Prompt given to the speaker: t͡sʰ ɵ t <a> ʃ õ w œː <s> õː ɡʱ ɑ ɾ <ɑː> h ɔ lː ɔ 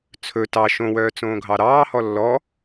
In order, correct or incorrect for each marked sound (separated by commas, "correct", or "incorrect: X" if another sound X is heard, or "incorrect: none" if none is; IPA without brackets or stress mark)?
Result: incorrect: ɑ, incorrect: t͡s, correct